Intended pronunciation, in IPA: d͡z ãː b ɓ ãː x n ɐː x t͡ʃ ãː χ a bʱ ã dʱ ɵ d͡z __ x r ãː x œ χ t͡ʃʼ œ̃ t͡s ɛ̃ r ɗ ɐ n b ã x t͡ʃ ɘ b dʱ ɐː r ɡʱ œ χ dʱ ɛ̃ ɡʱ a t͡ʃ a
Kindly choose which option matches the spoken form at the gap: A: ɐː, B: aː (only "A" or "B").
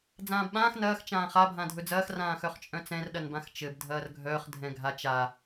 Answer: A